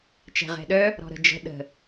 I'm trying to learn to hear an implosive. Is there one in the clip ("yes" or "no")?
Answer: yes